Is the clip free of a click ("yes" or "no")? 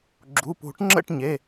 no